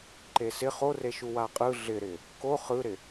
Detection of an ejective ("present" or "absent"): present